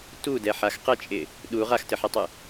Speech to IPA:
t u d ɛ ħ a x q ɘ t͡ʃʼ ɪ | ɗ u ʁ a x t ɘ ħ ɛ tˤ ɨ

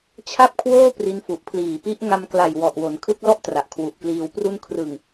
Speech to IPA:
t͡ɕʰ a˥˩ p̚ kʰ w oː˥˩ p r i˦˥ n f u˨˩ ʔ pʰ l iː˨˩ p i˦˥ ʔ ŋ a˧ m k l a˨˩ j w ɔ˨˩ ʔ w o˩˦ n kʰ ɯ˦˥ k̚ l ɔ˥˩ ʔ t r a˨˩ ʔ kʰ w u˨˩ ʔ k l iː˧ w p r u˥˩ n kʰ r ɯ˨˩ ŋ

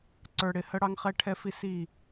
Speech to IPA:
ǀ ə˞˨ ɽ ɪ˨ h ə˦ ɽ ɑ˦ ŋ χ ɛ˦ ʈʰ ɛ˦ f i˦ s i˦˨

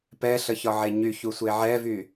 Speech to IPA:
p ɛ ɬ ə ç ɒ ʕ e ɲ y ç u sʷ e ʕ ɛ v y

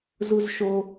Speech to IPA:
z u z ʃ o

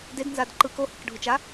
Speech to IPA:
d e d n z a d ǃ ɯ k o h i k ɖʱ u t͡ʃ a

